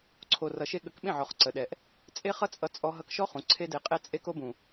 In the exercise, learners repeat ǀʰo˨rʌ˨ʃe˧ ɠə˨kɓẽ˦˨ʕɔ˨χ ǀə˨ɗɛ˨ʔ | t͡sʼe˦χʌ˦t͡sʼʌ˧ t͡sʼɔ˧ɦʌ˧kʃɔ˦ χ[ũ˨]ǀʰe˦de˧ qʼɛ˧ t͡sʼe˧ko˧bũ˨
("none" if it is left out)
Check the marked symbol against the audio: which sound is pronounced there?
ũ˨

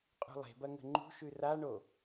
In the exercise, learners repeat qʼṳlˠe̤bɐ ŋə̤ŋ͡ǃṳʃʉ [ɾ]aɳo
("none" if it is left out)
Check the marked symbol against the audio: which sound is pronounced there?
r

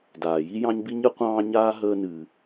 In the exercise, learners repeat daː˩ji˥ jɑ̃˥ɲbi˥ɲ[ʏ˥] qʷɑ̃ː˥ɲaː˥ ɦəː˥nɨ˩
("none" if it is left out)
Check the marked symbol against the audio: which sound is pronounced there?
ɨ˥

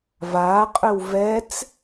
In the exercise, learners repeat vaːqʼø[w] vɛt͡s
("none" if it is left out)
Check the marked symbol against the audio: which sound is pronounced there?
w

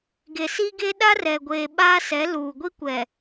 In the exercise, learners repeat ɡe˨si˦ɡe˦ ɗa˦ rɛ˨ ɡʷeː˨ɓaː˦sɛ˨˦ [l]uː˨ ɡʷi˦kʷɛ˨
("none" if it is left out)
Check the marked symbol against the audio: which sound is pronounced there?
l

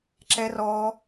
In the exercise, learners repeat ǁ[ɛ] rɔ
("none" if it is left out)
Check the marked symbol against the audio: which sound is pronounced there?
ɛ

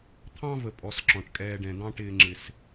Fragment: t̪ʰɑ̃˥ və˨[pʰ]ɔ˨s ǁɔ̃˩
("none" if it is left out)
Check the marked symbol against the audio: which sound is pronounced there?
pʼ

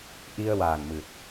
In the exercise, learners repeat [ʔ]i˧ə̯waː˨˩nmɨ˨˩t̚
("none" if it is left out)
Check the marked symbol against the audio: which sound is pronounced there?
ʔ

